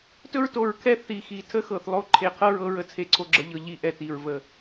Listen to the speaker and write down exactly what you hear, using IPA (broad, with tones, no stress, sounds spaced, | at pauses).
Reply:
t ɵ˦˨ ɹ t o˨˩ ɹ kʰ ɛ˦˨ θ i˨˩ x i˨˩ tʰ ə˦˨ x ɤ˨˩ θ lˠ o˦˨ ǃʰ e˨˩ qʰ ɤ˦˨ ɹ ɤ˦˨ ɹ ə˨˩ t͡sʰ e˨˩ ǀʰ o˨˩ ɡ͡ǁ ə˨˩ ʎ ɤ˨˩ ʎ i˨˩ ʔ ɛ˨˩ t i˨˩ ɹ v ə˨˩